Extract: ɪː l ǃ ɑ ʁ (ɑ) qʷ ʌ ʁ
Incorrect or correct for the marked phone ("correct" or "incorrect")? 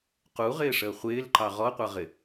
incorrect